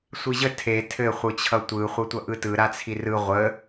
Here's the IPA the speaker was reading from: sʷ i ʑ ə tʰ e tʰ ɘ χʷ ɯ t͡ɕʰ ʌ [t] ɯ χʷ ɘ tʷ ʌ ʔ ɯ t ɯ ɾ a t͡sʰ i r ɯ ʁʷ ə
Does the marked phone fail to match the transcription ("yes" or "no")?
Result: yes